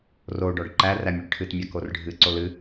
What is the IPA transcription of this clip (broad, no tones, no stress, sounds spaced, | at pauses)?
r o ɖ ɔ ɖ ǃ æ r æ mʲ o ɖ ʈʰ ɨ t mʲ a k o r ɖʱ ɨ ǀ o l ɨ